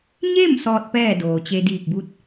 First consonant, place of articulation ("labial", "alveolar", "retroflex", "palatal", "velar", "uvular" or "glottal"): palatal